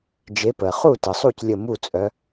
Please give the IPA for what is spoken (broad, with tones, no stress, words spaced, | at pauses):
d͡ʒe˨˦pə˩χu˥˨ tə˩sˤu˥˨c lʲə˥˨ mu˥˨t͡sʼœ˨˦